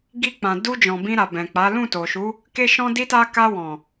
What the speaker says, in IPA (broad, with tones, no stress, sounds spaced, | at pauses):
ɡ i˧ k͡p ã˨ d u˧ d͡ʒ ɔ̃˨ b ĩ˧ ɾ a˨ b ɛ̃˨ k͡p a˨˦ l ũ˦˨ t o˨ ʃ u˨˦ | k e˦ ʃ ɔ̃˦ d i˦ t a˦ k a˧ w ɔ̃˨